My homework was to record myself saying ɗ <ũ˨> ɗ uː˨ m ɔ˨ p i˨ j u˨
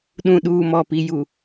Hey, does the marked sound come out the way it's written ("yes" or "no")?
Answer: yes